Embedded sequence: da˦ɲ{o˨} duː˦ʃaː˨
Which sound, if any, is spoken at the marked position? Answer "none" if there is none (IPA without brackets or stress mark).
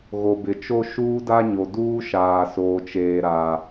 o˨